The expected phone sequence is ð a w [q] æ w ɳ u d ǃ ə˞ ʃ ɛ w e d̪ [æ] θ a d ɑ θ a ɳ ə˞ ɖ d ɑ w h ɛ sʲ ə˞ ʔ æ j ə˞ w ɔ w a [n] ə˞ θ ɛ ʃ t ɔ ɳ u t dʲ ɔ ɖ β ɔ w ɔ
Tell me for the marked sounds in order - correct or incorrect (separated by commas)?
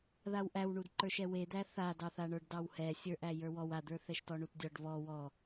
incorrect, correct, incorrect